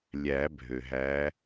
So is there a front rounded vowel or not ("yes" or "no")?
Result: yes